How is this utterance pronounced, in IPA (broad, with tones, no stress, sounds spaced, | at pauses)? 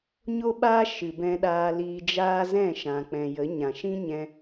ɲ o˦ ɓ aː˦ ʃ ɨ˨ b ɛ̃˧ ɗ aː˧ l iː˧ d͡ʒ aː˦ z ɛ̃˦˨ ʃ ã˨ k͡p ɛ̃˨ j ə˨˦ ɲ ã˨ ʃ ĩ˦ ɲ ɛ̃˧